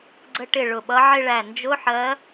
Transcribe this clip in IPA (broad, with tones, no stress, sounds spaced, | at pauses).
ɡ͡ǀ ə˧ ʈ ɪ˧˩ ɭ ʊ˧˩ ɓ ʌ˧˥ ʕ ɪ˥˧ ɭ æ˧˩ n d͡ʒ ʊ˧˥˧ ħ ɜ˧˥